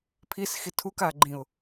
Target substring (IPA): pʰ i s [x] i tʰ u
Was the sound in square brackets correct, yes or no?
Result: yes